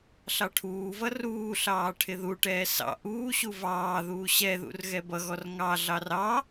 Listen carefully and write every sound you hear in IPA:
ɬɑʈʰuːvʌ ruːɬɑː ʈʰɪðuʈɛː sɑ̰ ʔuːɕu vɑːðuː ɕɛðṵr ɣɛbʌɣɔr ŋɑɮɑr ɑ

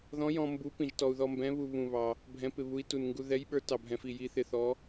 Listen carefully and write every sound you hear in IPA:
ðɔ̃˧˥jɔ̃˧ mbu˧˥ pĩ˧ʒtɔ˧u̯ ðɔ˧mbɛ̃˧˥βu˧ βũ˧βɑ˧ | bʱɛ̃˧˥pɪ˧βu˧˥i̯ tu˧n ŋɡu˧ðɛ˧˥jɓə˞˧˥ tɑ˧ bʱɛ̃˧fi˧ji˧˥ θɪ˧θɔ˧˥

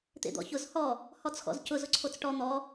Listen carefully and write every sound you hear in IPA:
t̪ḛd̪ɔ̰çʊz hɔ | hɔt͡sxɔ̰zcʊ zʊǀʰot͡sʈɔ n̪ɔ

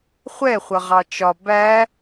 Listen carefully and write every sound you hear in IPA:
χʷɛχʷʌʁɑ t͡ʃɒ bæ

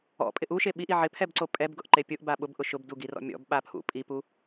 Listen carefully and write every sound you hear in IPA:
ɔ̰pʼɪ ʔuʃe ɓiʔi ʕɪpʰɛbǀo pʼɛbɡʊʔǃe pʲʊʔba ɓʊbʔʊ ʃʊbduɡirɔ̰ mʲɔ̰bɓapʰṵ pʼipu

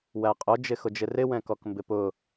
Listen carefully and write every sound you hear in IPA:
wæqʼʊ d͡ʒɪxʊd͡ʒɪrɪ wɛ̃kɔkmbɪpʊ

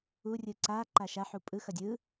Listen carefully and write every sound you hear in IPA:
urʲɯ ǀa ǃaʃaħu pʼɯxʌ dʲɯ

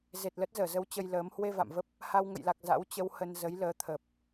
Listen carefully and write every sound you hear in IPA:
ze˨˩t̚lə˦˥t̚ zəː˧˩zə˨˦w t͡ɕə˧jləː˨˦m hwe˧va̰˧˨mvə˦˥p̚ | ha˧wŋə̰˧˨jla˨˩k̚ za̰˧˥wt͡ɕə˧whə˧n zə˨˦jləː˨˦t̪ʰə˨˩p̚

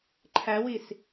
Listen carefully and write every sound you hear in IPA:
ǃʰæwis

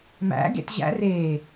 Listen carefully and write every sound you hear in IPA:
mæ̰ ɡḛtʑæ̰ re

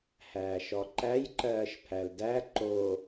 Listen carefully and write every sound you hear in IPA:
hæːʃɔǃæj ǃɜːʃpʰældæ ǃo

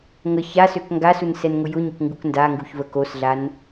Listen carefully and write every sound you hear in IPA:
ŋə ça søkŋɡasun sɛnŋʊjʊɲək ŋɡukndaŋɡuç vəkosɮan

